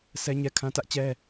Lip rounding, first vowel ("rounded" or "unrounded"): unrounded